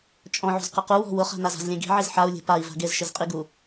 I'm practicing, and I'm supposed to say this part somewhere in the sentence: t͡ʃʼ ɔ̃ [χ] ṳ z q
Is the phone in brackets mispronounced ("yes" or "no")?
yes